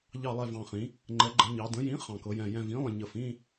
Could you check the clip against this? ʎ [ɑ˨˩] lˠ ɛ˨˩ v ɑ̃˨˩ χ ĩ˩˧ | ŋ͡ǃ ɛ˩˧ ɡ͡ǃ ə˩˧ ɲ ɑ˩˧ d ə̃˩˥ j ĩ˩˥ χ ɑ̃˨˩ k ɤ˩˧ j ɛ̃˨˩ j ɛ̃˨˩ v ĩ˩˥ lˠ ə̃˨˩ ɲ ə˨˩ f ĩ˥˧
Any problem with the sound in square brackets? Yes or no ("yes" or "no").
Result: no